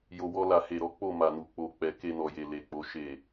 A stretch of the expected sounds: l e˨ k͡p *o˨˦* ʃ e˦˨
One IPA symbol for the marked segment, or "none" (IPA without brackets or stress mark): o˨˦